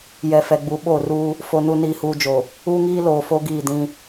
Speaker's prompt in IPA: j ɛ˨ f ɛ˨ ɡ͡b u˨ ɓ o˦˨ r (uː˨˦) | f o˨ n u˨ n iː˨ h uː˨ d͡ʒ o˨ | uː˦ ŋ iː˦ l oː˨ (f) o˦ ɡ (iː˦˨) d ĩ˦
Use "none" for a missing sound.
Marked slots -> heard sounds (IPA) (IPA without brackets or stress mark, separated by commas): uː˦, f, iː˦˨